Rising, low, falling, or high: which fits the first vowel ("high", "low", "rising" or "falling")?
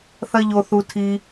high